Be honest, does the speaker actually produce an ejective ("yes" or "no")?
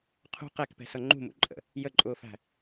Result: yes